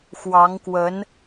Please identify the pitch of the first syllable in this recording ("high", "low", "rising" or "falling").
rising